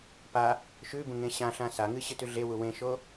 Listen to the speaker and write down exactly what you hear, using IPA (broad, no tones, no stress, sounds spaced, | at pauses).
p a | ʃ ʉ b ũ ŋ ẽ ɕ ã ɬ ã s a ŋ ɨ ɕ ɨ t ʉ ɮ e w u w ẽ ʃ o